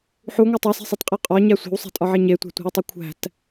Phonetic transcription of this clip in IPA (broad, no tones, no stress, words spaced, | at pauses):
ħuŋʷe tˤæse̤sˤitqʼæ qʼɒɲæ sʷe̤wsˤe̤tʼɒʕe ɲetʷæ̤tʷe̤wtˤu kʷʰæ̤t